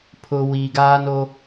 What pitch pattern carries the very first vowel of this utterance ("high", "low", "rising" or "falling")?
low